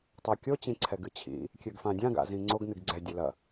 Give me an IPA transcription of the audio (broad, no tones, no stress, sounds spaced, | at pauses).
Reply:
tˤ ø kʲ o t͡ɕ ĩ ǀʰ ɛ ɡ ɨ t͡ɕʰ ḭ | kʲ ø ɡ f ã dʲ ã ɡ a̰ z ĩ ŋ͡ǀ o ɡ n ɨ ɡ ɡ͡ǀ ɛ dʲ ø l ɐ